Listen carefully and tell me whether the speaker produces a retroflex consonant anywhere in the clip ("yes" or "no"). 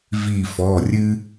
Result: no